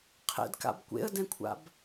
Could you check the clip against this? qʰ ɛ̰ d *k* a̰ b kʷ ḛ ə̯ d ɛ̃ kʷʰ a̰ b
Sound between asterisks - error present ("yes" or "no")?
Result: no